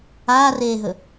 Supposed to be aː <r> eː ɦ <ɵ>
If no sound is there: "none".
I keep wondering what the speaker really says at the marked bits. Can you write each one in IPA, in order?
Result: r, ɵ

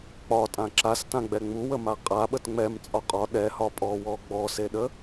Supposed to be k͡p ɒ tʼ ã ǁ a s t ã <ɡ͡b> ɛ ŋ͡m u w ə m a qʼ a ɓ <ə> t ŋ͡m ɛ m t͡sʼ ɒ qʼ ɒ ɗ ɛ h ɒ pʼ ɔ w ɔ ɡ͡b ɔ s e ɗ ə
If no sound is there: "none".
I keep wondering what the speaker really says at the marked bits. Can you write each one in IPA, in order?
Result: ɡ͡b, ə

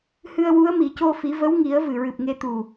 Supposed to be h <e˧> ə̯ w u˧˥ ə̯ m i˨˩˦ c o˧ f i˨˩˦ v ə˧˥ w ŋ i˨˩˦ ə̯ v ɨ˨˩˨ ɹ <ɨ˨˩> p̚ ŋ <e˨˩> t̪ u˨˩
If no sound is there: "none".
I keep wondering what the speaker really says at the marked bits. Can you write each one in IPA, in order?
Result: ɨ˧, ɨ˨˩, e˧

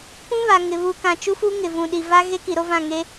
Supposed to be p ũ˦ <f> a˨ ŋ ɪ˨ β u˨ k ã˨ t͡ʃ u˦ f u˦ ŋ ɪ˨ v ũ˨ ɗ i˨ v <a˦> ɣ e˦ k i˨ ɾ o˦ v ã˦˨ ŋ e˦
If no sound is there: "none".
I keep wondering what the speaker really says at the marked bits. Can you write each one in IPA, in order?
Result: β, a˦

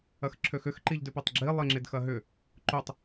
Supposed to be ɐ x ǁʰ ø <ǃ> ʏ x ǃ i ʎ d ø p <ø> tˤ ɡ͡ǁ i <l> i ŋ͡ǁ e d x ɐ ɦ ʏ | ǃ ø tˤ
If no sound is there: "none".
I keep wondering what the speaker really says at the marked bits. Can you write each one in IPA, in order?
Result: x, e, lˠ

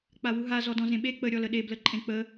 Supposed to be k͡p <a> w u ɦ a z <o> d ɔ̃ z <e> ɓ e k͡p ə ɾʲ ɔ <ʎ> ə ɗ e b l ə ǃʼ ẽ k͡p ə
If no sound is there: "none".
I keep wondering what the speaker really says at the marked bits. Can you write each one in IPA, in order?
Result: a, ɔ, ẽ, l

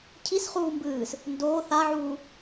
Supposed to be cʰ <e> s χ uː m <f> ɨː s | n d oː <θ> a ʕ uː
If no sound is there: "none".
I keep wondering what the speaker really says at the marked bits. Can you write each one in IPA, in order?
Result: i, b, θ

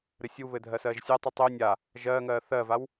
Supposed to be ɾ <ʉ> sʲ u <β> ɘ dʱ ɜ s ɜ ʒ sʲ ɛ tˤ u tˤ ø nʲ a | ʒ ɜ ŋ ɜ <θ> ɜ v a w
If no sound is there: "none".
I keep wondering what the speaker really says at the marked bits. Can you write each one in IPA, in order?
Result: ɘ, β, θ

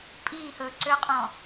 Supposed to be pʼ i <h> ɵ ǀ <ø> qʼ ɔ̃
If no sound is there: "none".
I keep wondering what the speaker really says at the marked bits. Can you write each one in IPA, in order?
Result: h, ø

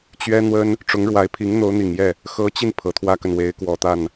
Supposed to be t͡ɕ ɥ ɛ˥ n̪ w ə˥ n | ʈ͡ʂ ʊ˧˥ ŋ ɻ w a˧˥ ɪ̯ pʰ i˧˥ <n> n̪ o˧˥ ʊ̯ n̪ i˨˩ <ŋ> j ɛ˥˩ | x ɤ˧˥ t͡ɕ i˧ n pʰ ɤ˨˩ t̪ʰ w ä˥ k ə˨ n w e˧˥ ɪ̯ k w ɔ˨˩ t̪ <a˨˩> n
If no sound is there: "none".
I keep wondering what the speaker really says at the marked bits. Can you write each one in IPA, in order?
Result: ŋ, ŋ, a˥˩

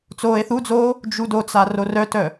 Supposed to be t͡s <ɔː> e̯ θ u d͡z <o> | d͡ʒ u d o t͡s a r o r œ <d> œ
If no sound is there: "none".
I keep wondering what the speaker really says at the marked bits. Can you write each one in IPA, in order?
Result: oː, oː, t

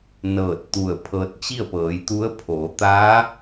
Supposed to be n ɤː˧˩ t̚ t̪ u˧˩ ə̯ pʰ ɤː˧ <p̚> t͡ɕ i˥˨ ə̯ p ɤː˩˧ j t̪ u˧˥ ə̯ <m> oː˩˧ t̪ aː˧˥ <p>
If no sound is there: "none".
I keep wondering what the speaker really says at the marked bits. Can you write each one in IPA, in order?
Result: t̚, pʰ, none

